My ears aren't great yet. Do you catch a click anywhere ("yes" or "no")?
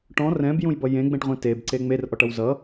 yes